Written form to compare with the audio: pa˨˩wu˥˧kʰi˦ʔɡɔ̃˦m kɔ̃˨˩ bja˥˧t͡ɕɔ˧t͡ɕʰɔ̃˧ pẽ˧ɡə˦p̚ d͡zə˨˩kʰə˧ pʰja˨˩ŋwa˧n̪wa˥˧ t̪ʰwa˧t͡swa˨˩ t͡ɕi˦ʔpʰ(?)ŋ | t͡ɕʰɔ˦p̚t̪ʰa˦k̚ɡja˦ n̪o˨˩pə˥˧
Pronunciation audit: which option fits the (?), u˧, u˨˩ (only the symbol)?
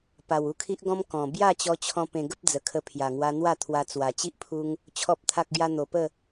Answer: u˧